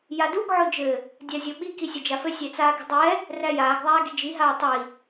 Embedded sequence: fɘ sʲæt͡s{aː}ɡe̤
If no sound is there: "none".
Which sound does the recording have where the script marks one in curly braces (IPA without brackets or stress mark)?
aː